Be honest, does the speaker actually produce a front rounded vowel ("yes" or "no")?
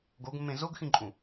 no